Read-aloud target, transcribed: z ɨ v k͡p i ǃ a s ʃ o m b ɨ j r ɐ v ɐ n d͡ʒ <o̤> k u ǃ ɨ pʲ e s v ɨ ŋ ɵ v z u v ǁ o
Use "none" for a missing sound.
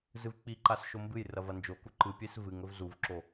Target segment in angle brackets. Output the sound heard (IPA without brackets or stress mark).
o